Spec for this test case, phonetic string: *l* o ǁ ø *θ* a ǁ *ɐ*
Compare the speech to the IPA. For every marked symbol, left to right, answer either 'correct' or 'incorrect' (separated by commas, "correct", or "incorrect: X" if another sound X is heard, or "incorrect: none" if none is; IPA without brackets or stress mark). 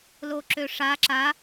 correct, incorrect: ʂ, incorrect: a